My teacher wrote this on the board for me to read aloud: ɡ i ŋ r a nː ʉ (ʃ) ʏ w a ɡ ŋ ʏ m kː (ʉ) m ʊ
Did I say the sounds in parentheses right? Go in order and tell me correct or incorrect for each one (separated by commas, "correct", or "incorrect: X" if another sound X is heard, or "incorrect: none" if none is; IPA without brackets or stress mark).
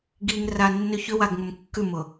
incorrect: ç, correct